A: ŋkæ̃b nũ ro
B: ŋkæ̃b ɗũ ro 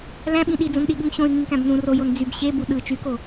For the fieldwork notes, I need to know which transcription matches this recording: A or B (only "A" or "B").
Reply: A